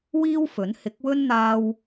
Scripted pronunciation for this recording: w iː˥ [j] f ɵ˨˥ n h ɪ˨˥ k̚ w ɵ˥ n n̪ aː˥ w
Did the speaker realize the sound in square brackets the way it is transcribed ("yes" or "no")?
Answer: no